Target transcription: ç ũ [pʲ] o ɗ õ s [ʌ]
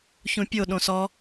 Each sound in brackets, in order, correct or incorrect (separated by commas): correct, incorrect